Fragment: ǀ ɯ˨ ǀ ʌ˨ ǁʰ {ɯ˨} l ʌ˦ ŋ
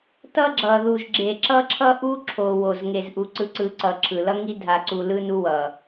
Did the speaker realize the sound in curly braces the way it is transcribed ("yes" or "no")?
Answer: yes